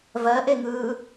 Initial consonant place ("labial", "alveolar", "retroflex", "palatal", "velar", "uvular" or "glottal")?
labial